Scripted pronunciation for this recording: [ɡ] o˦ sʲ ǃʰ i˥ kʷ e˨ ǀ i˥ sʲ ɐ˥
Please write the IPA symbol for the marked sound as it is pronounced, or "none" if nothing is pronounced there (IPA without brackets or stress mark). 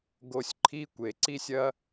ɡ